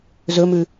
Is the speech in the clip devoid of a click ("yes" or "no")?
yes